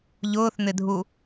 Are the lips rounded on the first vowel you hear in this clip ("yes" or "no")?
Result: yes